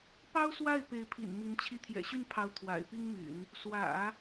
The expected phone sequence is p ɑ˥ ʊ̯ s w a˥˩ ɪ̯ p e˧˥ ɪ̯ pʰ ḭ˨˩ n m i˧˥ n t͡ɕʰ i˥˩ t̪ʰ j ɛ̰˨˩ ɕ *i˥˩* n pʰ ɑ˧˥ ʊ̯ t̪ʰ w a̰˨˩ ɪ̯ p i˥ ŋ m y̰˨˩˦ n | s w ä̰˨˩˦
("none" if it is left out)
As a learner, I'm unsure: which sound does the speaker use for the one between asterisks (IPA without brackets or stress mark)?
y˥˩